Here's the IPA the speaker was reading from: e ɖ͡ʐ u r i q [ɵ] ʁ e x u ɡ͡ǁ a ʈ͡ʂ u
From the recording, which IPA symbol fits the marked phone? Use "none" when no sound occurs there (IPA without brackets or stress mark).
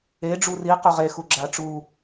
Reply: ɵ